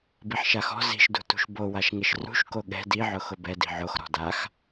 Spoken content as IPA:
b i ħ ʃ a x ɔ̤ z i̤ ʃ d ṳ t ṳ ʃ b o w a ʃ ŋ ɪ ʃ r ṳ ʃ k o ɠ ɛ̤ d i ʕ ʊ x ʊ b ɛ d i̤ ʕ o x ɾ ɔ̤ d a x

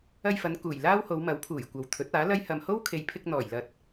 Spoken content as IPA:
ɐ˧ j f ɐ˨˧ n k uː˨˩ j l aː˥ w h o˨˧ w m ɐ˨˥ w pʰ uː˨˩ j kʷ ɐ˨ w t̪ʰ ɵ˨˥ t̚ aː˨˥ l ɐ˥ j h ɐ˧ m h o˥ w kʰ e˨ j pʰ ɪ˧ k̚ n̪ ɔː˨˩ j l ɐ˧ t̚

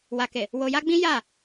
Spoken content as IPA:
w a˨ k e˨ | w o˧ j a˦ ɡ͡b ĩ˦ j a˦˨

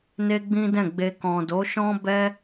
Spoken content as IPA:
n e˦ ɡ͡b ĩ˦ d ɛ̃˦˨ ɡ͡b e˧ k ɔ̃˨ d o˨˦ ʃ ɔ̃˦ b ɛ˦

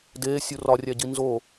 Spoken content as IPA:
d eː sʲ u r ɒ rʲ æ ɟ i n z o

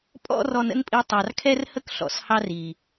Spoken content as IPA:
pʼ ɔ̰˦ r ɔ˧ n ə̰˦ n pʼ i˧ tˤ ɑ˨ r kʰ ɛ˦ r h ə˦ k ɬ ɔ̰˨ s h ɑ˦ r i˨

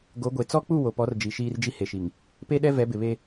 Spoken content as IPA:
ɡ o˨˦ ɡʷ e˨ t͡s ɔ˦ k͡p u˦˨ w o˨ p ɔ˨˦ r d͡ʒ i˨ ʃ iː˦ r d͡ʒ i˦ h e˨ ʃ i˨ ŋ | p e˦ ɗ ɛ˦ v ɛ˨˦ b ɪ˨ β e˦

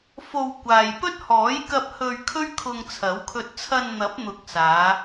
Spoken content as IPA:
f o˧ w kʷ aː˨ j p ɵ˥ t̚ h ɔː˨˥ j k ɐ˧ p̚ h ɵ˧ ɥ kʰ ɵ˥ ɥ kʰ ʊ˧ ŋ t͡sʰ ɐ˨˥ w kʰ ɵ˧ t̚ t͡sʰ ɐ˧ n n̪ ɐ˨˥ p̚ n̪ ʊ˨˥ k̚ s aː˨˧

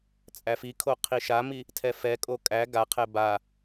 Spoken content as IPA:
t͡sʼ æ f i kʰ o qʰ i ʃ a m i | tʰ ɛ f ɛ kʼ o kʼ æ ɡ a qʰ ɛ b a

